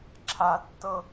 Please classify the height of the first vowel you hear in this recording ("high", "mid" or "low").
low